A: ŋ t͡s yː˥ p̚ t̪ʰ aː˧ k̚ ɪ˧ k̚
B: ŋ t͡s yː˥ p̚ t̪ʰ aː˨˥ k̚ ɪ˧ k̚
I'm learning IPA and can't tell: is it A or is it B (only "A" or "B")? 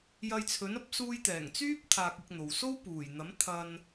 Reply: A